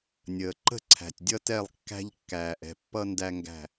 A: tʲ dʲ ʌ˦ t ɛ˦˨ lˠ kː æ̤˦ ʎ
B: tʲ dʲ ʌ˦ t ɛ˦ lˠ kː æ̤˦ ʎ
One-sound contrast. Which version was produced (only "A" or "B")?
A